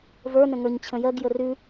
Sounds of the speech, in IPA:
və˞nə̃ ŋə˞ɲt͡ɕʰə̃jɜɡjə rʉ

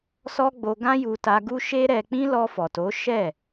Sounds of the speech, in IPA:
sɔ˦ɡ͡bo˧ ɡã˦ju˧ta˧ɡu˦ ʃe˦ɾɛ˧ k͡pĩ˦ lɔ˧fɔ˨to˨˦ ʃɛ˦˨

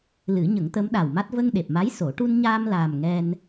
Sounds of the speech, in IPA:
lɨ˨˩˦ɲə˨˩˦ŋt̪ə˧˥m ɗa˨˩wma˦˥t̚ və˧ŋɗe˨˩p̚ma˧˥j so˨˩˦ ʈu˧nɲaː˧mlaː˨˩m ŋɛ˧n

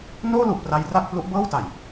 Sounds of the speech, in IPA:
noː˥˩lu˨˩ʔpra˧j ra˥˩k̚plu˦˥ʔ bɤː˥˩wta˨˩j

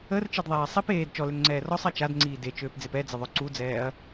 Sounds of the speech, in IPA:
ərt͡ʃedðˤɛː sˤip eːd t͡ʃɔløŋŋ͡ǀɛː rɔsˤɛ t͡ʃadŋ͡ǀiː det͡ʃøːpd͡zep ɛd͡zəðˤœ ǀud͡zɛːɐ̯

